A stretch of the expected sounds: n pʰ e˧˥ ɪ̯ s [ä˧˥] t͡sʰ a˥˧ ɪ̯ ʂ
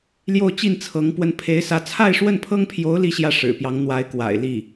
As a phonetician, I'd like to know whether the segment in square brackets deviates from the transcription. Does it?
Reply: no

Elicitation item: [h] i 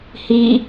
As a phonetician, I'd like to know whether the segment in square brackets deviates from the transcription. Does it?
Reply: no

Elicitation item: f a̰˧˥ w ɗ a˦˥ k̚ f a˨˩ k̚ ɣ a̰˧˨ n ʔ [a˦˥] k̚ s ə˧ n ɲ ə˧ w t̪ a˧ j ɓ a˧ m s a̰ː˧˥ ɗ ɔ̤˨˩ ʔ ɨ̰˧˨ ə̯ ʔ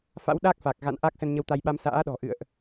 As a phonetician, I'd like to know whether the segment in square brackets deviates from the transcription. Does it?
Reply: no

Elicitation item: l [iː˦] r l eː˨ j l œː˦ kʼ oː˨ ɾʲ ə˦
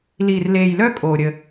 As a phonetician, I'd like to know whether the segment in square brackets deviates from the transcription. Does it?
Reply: yes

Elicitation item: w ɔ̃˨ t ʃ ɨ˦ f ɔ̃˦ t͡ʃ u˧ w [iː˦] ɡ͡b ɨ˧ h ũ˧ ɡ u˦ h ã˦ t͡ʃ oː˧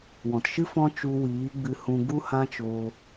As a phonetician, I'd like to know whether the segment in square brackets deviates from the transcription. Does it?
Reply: yes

